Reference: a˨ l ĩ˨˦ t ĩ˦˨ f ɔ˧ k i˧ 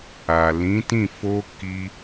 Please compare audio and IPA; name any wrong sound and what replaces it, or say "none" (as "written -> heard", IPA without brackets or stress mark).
ɔ˧ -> o˧